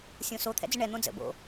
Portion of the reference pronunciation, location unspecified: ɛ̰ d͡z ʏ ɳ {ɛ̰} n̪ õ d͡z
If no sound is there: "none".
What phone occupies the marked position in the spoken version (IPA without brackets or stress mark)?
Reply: ɛ